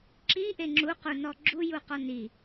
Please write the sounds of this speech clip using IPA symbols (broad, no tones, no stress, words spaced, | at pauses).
ǁiʔe ŋ͡ǁuqunɔ ɡ͡ǁujuqɔ ni